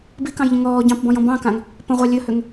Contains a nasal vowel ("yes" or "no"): yes